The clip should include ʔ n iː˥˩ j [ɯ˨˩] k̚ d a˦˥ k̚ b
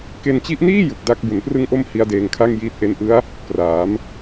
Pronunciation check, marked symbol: correct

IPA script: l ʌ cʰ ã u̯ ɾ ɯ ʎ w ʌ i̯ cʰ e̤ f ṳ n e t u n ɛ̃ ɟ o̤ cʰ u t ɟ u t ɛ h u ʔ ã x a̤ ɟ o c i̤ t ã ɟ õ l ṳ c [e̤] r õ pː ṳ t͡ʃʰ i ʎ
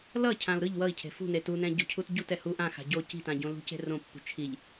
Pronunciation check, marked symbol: correct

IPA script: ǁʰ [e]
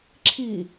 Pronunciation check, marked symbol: incorrect: i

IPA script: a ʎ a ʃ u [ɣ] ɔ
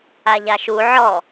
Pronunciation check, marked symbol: incorrect: ʕ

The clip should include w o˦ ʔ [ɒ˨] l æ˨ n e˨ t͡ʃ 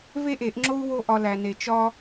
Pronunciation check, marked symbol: incorrect: ɒ˧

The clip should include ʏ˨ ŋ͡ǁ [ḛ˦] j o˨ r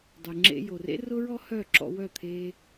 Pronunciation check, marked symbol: incorrect: ḛ˧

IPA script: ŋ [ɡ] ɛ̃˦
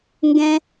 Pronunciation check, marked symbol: correct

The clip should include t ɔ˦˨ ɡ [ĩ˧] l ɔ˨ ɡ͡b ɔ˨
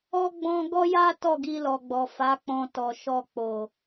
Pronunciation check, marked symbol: incorrect: i˧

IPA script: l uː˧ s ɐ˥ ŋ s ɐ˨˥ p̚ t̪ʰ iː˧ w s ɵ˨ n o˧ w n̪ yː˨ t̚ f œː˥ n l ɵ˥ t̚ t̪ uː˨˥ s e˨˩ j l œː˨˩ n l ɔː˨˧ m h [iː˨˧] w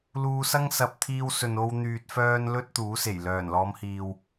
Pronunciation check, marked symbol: incorrect: iː˨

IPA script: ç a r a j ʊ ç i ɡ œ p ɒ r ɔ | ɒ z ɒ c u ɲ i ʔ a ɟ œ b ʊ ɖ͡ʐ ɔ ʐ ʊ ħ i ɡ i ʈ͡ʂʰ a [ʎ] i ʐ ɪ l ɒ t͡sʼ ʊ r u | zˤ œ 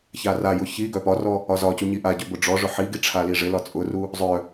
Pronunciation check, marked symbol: incorrect: l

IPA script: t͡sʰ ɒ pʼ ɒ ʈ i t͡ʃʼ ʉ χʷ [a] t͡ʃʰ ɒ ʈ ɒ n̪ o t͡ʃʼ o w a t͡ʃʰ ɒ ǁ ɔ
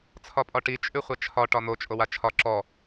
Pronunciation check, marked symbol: correct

